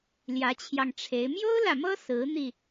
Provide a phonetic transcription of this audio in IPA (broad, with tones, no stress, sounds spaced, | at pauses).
l j ä˧˥ t͡ɕʰ j ɑ˧ ŋ ʈ͡ʂʰ e˧˥ ɪ̯ m j o˥ ʊ̯ l ä˨ m ɤ˥ s ɹ̩˧˥ n̪ i˧